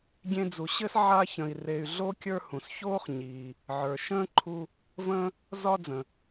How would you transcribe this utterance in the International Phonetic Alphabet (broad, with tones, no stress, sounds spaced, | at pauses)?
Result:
ɡʲ ẽ˦ d͡z u˨ ɕ ɘ˥ s ʕ a˦ ç ə̃˨ i̯ r e˨ y̯ ɮ o˥ kʲ ə˞˦ h ũ˩ s ç oː˥ χ ɲ iː˩ | ʕ ə˞˩ ʃ ə̃ː˥ ǃʰ u˦ | v ə̃ː˥ | z ɒː˥ d͡z ə̃˩